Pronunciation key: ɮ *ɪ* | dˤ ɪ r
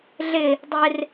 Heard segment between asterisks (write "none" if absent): ɪ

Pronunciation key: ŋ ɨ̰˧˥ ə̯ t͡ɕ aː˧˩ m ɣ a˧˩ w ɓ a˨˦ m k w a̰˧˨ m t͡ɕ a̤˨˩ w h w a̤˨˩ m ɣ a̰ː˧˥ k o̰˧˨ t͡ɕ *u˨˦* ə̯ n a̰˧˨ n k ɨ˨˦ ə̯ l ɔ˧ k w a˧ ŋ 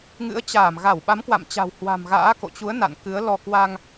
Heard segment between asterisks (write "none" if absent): u˨˦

